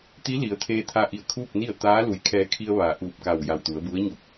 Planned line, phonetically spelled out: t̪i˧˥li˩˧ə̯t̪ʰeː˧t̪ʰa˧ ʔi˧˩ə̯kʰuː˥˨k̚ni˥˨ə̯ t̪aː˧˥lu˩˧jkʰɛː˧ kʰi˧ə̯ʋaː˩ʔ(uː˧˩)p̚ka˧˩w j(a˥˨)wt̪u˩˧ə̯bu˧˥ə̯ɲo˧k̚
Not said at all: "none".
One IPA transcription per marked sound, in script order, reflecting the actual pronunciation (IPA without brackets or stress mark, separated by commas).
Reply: uː˧˩, a˧˩